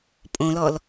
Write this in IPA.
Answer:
pʼ õ l ɔ l

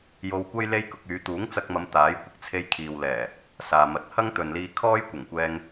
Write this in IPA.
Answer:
j o˧ w kʷ ɐ˥ j l e˥ j k ʊ˧ k̚ yː˨˧ t̪ uː˨˥ ŋ t͡s ɐ˧ k̚ m ɐ˨˧ m t̪ aː˨˥ j kʷ ɪ˧ k̚ t͡sʰ e˧ j kʰ iː˨ w l ɛː˨˩ | s aː˨ m ɐ˨˥ t̚ h ɐ˥ ŋ t̪ ɵ˨ n l iː˧ kʰ ɔː˥ j kʷ ɐ˨˩ ŋ kʷ ɛː˧ ŋ

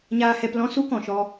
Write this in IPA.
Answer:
ɲ aː˧ h ɛ˧ p l ɔ̃˦ s u˦ k ɔ̃˨ ʃ ɔ˧

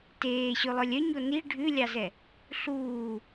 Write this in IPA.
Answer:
t eː ɕ ʉ lˠ œ lʲ œ ɲ o n i ɖʱ ʉ lʲ ɑ z ɛ | ɬ uː

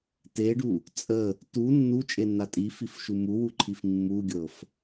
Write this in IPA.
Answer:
t e ɖ u | t͡sʼ ə | t u nː u t͡ʃʼ e nː a tʼ i f i f ʃ u m u w u ǃʰ i f mː u ɡʲ ɤ f

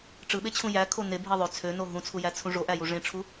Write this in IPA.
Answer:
ʈ͡ʂ ɯ ɓ e t͡ɕʰ ũ j æ kʰ o n e bʱ i ðˤ ø t͡sʰ ø n o ɦ ũ t͡sʰ u j æ t͡sʰ ũ ʐ o ʔ æ j u ʐ ẽ ʈ͡ʂʰ u

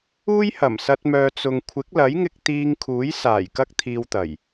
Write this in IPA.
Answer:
uː˥ j h ɐ˨˩ m s ɐ˧ t̚ m œː˨ t͡s ʊ˨ ŋ kʷʰ ɪ˨˥ k̚ l ɐ˨˥ j ŋ ɪ˧ k̚ t̪ iː˧ ŋ kʰ uː˨˥ j s aː˨˩ j k ɐ˥ k̚ t̪ʰ iː˧ w t̪ ɐ˨˩ j

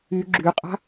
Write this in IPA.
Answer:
y ɡ͡ǁ y qʼ a̤

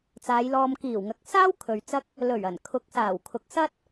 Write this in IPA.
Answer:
t͡s aː˨˧ j l ɔː˧ m k iː˨˩ w ŋ ɐ˨ k̚ s aː˥ w kʰ ɵ˨ ɥ t͡s ɐ˥ k̚ | l ɵ˨˩ ɥ ɐ˨˩ n kʰ ʊ˨˥ k̚ s aː˨˩ w kʰ ʊ˨ k̚ s ɐ˥ t̚

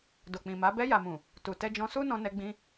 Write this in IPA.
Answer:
d o˨ k͡p ĩ˨ m a˨˦ b ɛ˧ j a˨ m ũ˨ | t u˨ t ɛ˧ d͡ʒ ɔ̃˧ s u˦ n ɔ̃˧ n ɛ˧ ɡ͡b ĩ˧

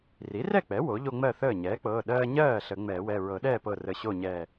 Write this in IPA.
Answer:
r i˩˥ r ɛ˥˨ k͡p ɛ˩˥ w o˩˥ ʎ o˦ ŋ͡m ɜ˥˨ θ əː˥˨ ɲ ɛː˩˥ k͡p ɤː˩˧˩ ɗ ɜː˦ ɲ ɜː˥˨ ɬ ə˨˩˦ ŋ͡m ɛː˨˩˦ w ɛ˩˧˩ ɹ ɤ˨˩˦ ɗ ɛː˥˨ p ɤ˧˩ r ə˧˩ ɕ o˥˨ ɲ ɛː˧˩

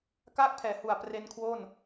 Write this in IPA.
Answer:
k aː˥˩ k̚ pʰ ɛː˩˦ h u˨˩ a̯ p r e˧ n kʰ w o˥˩ n

